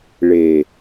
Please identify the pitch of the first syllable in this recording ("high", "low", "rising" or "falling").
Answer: low